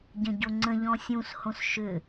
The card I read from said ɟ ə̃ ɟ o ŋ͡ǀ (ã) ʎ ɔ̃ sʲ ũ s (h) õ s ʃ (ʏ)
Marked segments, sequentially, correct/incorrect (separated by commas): incorrect, correct, correct